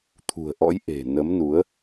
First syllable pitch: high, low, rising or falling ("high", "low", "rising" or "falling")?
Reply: low